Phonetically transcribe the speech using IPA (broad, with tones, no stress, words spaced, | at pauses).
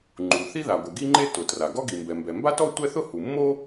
ŋ͡ǃu˩ θi˥ða˩ɡʷɪ˩ ɡi˥ŋ͡ǃe˥ tʊ˩ tra˩ ɡɔ˥ɡi˩mbɛ˩ mbɛ˩mba˥tɔ˥ tʷɛ˥θʊ˥ hu˩mːo˥